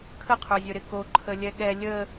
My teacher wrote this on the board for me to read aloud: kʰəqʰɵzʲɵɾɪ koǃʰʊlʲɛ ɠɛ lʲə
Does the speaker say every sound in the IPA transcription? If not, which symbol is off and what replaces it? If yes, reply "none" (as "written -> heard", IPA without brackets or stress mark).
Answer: ʊ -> ə